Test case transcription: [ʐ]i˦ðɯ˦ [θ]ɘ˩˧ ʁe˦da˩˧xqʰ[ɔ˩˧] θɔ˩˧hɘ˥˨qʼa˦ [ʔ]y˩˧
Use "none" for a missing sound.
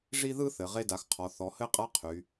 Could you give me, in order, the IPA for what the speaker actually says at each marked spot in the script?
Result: ʐ, θ, ɔ˩˧, qʰ

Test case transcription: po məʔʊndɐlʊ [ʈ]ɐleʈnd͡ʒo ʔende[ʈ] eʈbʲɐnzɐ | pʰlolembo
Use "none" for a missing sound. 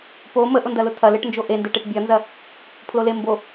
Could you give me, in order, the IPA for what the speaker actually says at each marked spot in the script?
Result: tʰ, ʈ

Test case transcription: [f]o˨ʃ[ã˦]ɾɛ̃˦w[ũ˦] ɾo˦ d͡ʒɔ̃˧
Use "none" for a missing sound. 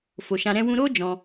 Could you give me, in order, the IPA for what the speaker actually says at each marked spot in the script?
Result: f, ã˧, ũ˦

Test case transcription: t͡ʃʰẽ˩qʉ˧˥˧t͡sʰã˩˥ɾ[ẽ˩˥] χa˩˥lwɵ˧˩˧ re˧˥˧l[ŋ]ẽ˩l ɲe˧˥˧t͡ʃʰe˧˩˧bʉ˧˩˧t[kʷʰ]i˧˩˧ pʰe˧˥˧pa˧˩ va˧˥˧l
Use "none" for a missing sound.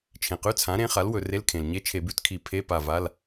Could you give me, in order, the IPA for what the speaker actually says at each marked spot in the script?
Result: ẽ˩˥, kʰ, kʰ

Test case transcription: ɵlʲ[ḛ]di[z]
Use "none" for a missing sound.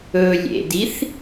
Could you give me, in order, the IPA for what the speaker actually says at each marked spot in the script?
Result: ḛ, θ

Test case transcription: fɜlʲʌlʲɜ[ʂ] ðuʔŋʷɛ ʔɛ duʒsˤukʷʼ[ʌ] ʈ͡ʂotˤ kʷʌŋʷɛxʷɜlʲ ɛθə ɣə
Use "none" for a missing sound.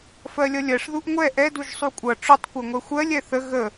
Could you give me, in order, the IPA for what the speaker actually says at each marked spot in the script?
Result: ʂ, ʌ

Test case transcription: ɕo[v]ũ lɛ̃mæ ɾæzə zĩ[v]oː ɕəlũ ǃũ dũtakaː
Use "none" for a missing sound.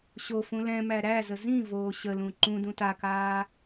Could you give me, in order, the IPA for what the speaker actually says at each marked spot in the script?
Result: f, v

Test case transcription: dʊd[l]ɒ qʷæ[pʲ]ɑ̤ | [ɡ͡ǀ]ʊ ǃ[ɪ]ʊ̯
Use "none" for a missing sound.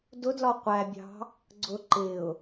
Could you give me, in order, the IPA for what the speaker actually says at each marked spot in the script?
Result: l, bʲ, ɡ͡ǀ, ɪ

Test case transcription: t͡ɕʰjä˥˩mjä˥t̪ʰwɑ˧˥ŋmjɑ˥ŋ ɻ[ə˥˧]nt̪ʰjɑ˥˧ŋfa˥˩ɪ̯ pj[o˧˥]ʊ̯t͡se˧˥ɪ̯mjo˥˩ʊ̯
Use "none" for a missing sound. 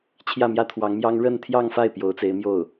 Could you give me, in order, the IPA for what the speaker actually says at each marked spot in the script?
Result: ə˥˧, o˧˥

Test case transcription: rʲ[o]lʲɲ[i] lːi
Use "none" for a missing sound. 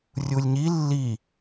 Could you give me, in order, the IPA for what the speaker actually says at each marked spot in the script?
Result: u, i

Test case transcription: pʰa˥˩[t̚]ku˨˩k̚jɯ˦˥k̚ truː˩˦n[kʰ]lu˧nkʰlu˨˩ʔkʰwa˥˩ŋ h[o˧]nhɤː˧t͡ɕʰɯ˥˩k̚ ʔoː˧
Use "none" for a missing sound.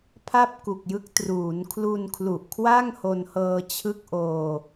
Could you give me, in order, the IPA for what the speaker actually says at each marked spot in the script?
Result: p̚, kʰ, o˧

